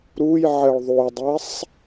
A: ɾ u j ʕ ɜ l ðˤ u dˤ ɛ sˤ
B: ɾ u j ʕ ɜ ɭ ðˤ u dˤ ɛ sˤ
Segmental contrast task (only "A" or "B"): B